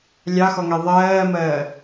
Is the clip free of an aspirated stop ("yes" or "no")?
yes